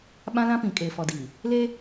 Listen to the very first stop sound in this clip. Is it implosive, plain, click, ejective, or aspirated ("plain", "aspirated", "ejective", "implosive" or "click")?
implosive